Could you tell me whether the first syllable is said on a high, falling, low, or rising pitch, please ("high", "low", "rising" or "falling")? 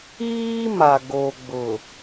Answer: high